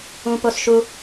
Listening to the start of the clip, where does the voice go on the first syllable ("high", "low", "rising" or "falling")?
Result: high